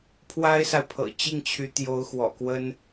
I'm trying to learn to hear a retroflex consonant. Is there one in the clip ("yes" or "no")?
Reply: no